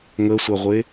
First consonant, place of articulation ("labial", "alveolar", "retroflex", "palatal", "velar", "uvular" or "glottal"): velar